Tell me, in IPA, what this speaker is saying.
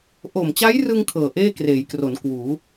ʔo˨˩mt͡ɕa˦˥jrɯ˧ŋ kʰɤː˨˩ʔeː˥˩kreː˩˦jkro˩˦n kwuː˩˦

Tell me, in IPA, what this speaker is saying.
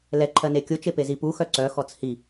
lɛ ǃʰɜnekʲʊ t͡ʃepezi pu xœǀœ xɔt͡shi

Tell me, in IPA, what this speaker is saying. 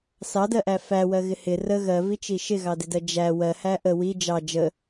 sɑdɜʔæ fæwɜɣɪ hɪ rə ɣɜvit͡ʃi ʃɪɣɑdɪdɜ d͡ʒæ wɜhæ ʔə wi d͡ʒɑ d͡ʒə

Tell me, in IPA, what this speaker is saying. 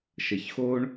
ʃə˨çxo˦ɳ

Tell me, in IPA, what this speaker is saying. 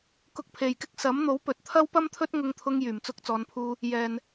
kʊ˨k̚pʰe˨˩jkɪ˥k̚ sɐ˨˥m n̪o˨˥wpɵ˨t̚t̪ʰɐ˥w pɐ˥mt̪ʰɵ˥t̚ ŋʊ˧ŋt̪ʰʊ˧ŋ jyː˨˩mt͡sʊ˨˥k̚t͡sɔː˨˧npʰuː˧ | jɛː˨n

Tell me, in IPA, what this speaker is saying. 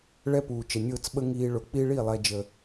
ɭɛ˦puː˨ t͡ʃə˨ nʲʊː˦˨t͡s ɓə˦ ŋiː˦ ɭʊ˨k͡pi˦ɭi˦˨ lˠɛ˦d͡ʒə˨

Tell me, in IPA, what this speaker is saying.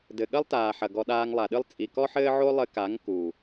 dɘ˨ɠɐ˦lˠtaː˨ħɐ˨ ɡɔ˧ɗaː˧ŋlˠa˨ɗɨ˦lˠ t͡sʼi˨kɔ˦ħɘː˦ʕo˦ lˠɘ˧ka˨˦ŋ ku˨

